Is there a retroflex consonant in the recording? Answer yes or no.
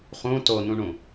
yes